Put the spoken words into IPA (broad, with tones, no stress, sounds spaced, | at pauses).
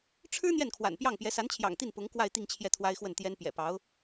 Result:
ʈ͡ʂʰ ɻ̩˥ n̪ j ɛ˥˩ n kʰ w a̰˨˩ n p j ɑ˥˩ ŋ p j ɛ˧˥ s a˧˥ n t͡ɕʰ j ɑ̰˨˩ ŋ t̪ i˥˩ n p ʊ˧˥ ŋ k w a˥˧ ɪ̯ t̪ i˥˧ ŋ t͡ɕʰ j ɛ˥˩ t̪ʰ w a˥ ɪ̯ x w ə˥˩ n t̪ j ɛ˥ n p j ɛ̰˨˩ p ɑ˧˥ ʊ̯